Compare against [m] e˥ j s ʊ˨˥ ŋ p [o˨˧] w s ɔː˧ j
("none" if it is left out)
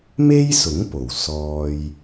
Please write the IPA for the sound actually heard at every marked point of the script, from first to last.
m, o˨˩

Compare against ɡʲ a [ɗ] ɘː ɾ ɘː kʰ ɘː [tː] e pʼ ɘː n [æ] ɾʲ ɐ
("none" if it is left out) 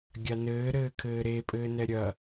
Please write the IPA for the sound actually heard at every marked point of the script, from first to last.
n, ɾ, ɛ

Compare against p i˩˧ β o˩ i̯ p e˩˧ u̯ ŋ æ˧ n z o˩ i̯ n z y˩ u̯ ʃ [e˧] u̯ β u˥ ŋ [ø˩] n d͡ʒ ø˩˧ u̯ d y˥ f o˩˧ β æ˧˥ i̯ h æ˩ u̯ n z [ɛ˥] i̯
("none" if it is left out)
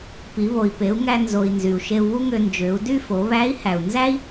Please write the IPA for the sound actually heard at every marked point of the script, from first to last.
e˧, ø˧, æ˥

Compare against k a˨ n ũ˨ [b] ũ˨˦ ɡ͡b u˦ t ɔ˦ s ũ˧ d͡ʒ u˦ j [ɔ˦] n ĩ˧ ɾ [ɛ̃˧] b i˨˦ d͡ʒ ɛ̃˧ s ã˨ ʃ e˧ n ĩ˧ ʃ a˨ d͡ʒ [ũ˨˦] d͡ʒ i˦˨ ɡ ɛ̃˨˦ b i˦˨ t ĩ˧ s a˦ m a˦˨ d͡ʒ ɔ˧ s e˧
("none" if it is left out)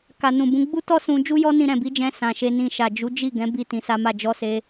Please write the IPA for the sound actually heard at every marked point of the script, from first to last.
b, ɔ˦, ɛ̃˨, u˨˦

